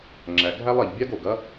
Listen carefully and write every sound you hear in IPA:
ŋ͡ǁæ˩ ɡʱæ˥lˠ ɛ˩ʎbʲa˥ɡo˩ɡɐ˥

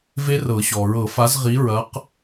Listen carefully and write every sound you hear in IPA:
ve˦˥ rɤ˨˩˦ɕɔ˩ ɹɤ˨˩˦fa˨˦zʁi˨˦ɹɐ˨˦q

